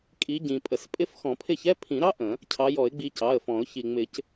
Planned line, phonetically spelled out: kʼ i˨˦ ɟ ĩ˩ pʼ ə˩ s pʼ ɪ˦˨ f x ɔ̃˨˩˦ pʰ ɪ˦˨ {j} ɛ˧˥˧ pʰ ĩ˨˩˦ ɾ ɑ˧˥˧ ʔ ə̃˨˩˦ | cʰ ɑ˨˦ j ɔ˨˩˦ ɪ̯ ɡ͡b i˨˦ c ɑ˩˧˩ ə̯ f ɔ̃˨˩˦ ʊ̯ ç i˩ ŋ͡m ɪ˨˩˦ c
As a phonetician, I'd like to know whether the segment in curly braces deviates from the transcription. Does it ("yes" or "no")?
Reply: yes